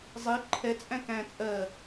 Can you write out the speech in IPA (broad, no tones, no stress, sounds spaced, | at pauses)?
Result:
zˤ i ǃʰ ɛ t͡sʼ æ̃ k æ̃ t͡sʼ ɜ